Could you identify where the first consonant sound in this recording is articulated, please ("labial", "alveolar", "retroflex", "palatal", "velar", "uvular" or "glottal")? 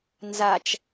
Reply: alveolar